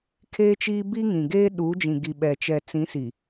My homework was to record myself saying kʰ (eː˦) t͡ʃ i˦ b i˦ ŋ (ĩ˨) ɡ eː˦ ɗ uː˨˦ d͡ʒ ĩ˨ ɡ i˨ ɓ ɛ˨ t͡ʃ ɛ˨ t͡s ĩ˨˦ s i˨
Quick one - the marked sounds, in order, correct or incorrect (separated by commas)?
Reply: correct, correct